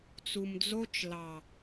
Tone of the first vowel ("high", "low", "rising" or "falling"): low